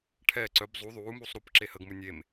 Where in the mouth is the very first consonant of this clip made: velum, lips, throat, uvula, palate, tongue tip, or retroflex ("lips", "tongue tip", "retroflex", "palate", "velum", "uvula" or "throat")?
retroflex